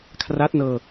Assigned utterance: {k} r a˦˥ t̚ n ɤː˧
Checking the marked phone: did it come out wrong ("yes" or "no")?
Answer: yes